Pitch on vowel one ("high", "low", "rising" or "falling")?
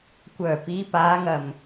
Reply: low